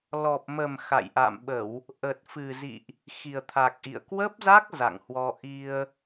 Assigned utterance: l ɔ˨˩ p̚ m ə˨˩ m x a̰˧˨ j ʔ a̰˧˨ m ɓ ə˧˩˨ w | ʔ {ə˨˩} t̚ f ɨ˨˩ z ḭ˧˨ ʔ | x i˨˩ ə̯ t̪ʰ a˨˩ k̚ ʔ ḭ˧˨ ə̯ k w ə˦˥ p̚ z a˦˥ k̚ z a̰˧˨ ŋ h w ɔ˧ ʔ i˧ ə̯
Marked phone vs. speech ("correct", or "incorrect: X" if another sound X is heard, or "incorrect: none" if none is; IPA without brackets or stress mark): correct